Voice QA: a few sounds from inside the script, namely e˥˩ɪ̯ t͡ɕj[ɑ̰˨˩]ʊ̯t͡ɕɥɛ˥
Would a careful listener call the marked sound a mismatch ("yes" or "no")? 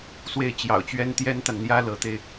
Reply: no